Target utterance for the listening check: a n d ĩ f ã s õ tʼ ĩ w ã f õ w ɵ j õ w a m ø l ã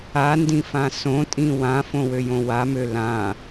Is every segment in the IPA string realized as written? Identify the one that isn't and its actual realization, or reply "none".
ɵ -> ø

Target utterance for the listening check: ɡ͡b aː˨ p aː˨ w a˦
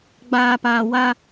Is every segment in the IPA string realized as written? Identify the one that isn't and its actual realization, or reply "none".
none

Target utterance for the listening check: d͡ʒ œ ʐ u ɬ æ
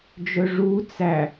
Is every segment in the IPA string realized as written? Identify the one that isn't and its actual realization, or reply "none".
ɬ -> t͡s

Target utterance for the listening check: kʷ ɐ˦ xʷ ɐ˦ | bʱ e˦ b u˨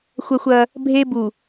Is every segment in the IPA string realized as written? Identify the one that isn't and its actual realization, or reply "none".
kʷ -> xʷ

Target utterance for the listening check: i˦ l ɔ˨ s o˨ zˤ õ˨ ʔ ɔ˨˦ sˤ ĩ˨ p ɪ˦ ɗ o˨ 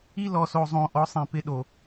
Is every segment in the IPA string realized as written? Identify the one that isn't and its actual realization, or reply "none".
none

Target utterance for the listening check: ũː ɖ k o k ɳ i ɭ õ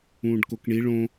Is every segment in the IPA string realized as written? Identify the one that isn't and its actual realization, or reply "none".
none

